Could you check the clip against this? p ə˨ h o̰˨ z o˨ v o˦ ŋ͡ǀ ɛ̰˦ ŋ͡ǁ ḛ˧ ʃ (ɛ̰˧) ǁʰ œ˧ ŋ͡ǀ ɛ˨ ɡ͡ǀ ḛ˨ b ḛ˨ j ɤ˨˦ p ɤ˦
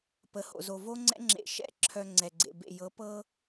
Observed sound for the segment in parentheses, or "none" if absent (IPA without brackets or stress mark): ɛ̰˦